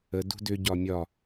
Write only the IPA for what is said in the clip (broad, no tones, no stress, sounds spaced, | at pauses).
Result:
ə d ṳ d ʏ ɟ ɒ mʲ ɒ